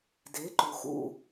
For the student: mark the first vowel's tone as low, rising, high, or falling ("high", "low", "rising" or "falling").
rising